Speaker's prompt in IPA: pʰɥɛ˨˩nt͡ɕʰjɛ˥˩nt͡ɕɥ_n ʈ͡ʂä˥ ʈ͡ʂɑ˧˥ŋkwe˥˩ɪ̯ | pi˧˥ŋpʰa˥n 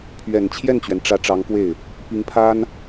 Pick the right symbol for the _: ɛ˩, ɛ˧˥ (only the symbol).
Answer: ɛ˩